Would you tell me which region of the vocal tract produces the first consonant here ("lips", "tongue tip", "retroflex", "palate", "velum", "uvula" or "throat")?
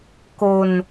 velum